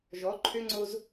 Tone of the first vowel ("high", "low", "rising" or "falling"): rising